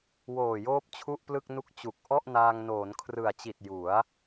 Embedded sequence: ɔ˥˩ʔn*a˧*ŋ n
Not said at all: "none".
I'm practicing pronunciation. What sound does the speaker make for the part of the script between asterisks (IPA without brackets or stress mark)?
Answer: aː˧